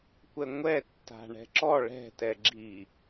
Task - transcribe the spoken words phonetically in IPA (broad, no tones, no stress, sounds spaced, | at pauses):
kʷ ɛ ŋʷ ɛ tː a̤ ɳ ɛ̤ ǁ ɔ ɭ ɛ̤ t ɛ ɡ͡ǁ i